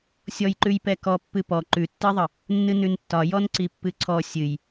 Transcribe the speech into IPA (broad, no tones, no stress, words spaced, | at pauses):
sʲɔjǃʉj pɛkɔ pːɨpɔ ǃʉtːiðˤə | nːɨnʉntːɒ jɔnǀipːɨǀʰɔ sʲɨj